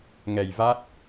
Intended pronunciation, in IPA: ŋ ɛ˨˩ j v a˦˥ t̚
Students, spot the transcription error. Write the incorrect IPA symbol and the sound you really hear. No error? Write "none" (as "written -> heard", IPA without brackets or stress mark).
none